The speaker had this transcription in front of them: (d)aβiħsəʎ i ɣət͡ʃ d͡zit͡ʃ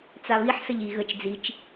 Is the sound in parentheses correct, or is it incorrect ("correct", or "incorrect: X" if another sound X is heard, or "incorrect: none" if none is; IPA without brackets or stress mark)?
incorrect: t͡s